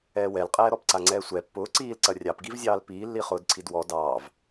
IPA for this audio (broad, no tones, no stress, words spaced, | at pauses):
ɛːwɛlqʼɛː ɾɔpǀaŋ͡ǀɛːsʷɛ pːʊː ǀiːlǀɐ rʲɑpɡivzʲɑːl piːlːi χʊːdǀʰidwɔ dɑːv